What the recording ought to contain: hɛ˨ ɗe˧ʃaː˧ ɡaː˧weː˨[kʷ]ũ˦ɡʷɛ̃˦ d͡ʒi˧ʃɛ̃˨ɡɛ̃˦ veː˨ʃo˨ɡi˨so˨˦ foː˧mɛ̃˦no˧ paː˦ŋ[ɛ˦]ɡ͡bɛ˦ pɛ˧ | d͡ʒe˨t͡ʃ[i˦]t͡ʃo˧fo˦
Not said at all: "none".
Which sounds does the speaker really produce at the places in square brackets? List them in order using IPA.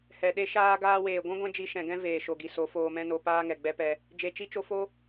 ɡʷ, ɛ˨, i˦

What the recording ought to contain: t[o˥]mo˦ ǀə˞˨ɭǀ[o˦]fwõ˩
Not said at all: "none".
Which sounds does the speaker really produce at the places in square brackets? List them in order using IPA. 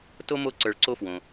o˥, o˦

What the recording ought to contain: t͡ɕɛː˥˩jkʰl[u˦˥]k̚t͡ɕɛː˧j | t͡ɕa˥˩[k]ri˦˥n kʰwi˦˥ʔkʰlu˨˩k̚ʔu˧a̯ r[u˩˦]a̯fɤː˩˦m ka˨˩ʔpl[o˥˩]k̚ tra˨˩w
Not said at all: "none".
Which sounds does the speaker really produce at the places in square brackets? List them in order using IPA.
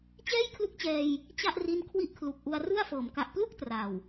u˦˥, ʔ, u˥˩, u˥˩

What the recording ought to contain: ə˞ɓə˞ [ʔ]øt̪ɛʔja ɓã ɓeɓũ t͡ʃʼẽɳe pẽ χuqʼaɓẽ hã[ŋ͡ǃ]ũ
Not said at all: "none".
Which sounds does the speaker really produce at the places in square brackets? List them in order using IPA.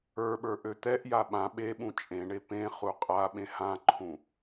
ʔ, ǃʰ

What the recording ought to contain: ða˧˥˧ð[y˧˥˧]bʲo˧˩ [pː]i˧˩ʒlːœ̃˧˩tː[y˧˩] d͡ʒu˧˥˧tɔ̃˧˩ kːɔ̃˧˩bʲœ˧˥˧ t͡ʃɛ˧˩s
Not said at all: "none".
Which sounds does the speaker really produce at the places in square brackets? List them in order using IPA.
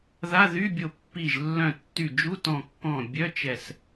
y˧˥˧, pː, y˧˩

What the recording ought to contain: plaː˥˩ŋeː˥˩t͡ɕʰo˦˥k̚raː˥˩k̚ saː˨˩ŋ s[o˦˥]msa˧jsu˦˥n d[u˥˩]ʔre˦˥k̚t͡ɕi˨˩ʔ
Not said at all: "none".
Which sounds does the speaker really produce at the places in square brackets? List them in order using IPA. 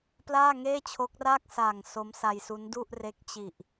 o˦˥, u˥˩

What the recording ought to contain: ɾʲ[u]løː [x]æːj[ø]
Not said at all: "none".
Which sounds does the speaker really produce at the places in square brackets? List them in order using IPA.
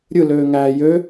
ɯ, ŋ, ø

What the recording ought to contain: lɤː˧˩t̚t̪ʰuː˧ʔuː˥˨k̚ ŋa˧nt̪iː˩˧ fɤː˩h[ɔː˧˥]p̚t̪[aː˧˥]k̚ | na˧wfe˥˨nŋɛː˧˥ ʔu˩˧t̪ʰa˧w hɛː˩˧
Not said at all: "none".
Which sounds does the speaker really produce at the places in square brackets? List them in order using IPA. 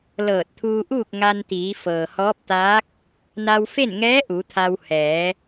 ɔː˧˥, aː˧˥

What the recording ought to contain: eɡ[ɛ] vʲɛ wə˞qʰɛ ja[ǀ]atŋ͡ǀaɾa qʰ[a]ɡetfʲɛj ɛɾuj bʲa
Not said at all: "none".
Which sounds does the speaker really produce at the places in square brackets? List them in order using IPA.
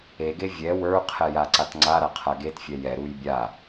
e, ǀ, a

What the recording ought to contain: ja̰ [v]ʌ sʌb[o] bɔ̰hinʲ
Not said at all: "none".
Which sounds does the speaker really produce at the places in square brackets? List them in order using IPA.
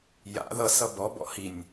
ð, ɔ

